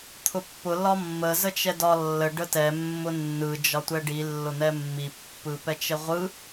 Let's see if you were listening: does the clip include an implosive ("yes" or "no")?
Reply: no